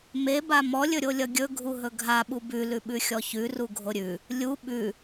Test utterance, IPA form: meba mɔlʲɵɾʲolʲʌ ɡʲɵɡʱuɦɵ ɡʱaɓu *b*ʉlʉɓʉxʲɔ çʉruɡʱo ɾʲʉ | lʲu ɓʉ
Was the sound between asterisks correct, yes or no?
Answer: yes